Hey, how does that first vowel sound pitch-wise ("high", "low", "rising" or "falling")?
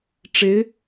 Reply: rising